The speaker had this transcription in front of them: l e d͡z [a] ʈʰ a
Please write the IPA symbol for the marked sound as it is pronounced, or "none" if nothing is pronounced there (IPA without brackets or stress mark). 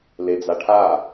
a